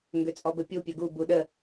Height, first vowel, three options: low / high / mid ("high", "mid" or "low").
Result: mid